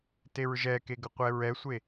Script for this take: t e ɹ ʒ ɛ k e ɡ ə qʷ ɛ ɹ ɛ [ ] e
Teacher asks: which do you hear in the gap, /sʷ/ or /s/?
sʷ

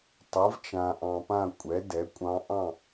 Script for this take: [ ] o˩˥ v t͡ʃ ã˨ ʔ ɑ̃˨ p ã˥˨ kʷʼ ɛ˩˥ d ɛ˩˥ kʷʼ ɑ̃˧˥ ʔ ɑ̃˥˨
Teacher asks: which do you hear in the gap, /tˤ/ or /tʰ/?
tˤ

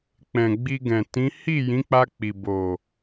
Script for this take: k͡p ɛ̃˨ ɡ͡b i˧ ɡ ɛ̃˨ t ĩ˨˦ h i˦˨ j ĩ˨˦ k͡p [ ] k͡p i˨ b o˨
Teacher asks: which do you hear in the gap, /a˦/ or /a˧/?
a˧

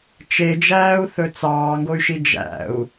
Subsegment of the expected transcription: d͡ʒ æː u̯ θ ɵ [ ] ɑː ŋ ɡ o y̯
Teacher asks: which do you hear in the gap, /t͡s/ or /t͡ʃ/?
t͡s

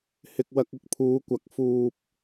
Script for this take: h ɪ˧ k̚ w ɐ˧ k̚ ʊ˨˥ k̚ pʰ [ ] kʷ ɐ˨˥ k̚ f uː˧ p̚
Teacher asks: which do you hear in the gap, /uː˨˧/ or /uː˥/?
uː˨˧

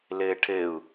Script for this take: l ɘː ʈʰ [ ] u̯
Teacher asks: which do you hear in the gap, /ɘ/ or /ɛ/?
ɘ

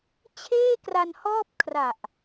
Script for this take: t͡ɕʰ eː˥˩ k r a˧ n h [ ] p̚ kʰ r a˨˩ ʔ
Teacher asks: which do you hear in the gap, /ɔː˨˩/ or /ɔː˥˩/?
ɔː˥˩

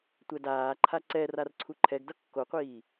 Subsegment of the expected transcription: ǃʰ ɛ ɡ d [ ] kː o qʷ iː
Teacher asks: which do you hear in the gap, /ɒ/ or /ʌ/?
ʌ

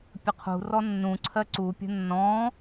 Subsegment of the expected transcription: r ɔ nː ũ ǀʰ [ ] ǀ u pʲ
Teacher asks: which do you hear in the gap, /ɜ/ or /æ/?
ɜ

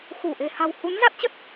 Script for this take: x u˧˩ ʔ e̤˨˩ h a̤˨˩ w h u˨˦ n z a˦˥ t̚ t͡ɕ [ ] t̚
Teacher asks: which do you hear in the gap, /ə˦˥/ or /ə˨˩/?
ə˦˥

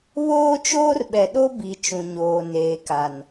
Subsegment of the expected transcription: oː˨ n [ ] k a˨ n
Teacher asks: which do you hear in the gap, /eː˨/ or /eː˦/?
eː˨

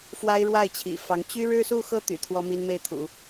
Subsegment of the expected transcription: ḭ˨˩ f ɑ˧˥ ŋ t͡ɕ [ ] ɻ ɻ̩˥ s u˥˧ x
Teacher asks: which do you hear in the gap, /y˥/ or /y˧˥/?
y˥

